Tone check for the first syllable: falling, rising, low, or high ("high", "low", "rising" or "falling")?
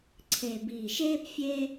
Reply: low